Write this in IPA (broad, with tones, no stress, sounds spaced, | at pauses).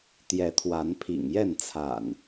t̪ j ɛ˨˦ t̪ʰ w a˨˦ n pʰ ḭ˨˩ ŋ j ɛ˥˨ n t͡sʰ a̰˨˩ n